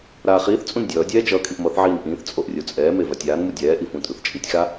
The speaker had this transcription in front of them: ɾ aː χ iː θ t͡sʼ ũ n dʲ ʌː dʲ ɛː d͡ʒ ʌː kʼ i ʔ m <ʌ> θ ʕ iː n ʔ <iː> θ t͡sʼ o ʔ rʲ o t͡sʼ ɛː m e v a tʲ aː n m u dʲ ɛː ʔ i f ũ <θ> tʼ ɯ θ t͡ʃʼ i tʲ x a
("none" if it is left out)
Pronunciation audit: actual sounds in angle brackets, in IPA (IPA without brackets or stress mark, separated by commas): ʌ, ĩː, none